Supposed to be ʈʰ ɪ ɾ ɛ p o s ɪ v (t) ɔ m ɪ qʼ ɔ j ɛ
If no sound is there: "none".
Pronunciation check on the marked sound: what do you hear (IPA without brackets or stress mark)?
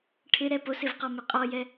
q